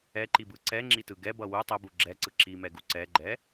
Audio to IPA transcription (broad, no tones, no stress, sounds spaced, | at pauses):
ɛ ǃ i b ɯ ǀ ɛ ŋ͡ǁ i t ɯ ɡ ɛ b ʌ w u tˤ ɛ b u ɡ͡ǁ ɛ ǀ ɯ ǁ i m ɛ ɡ u ǀ ɛ ɡ͡ǃ ɛ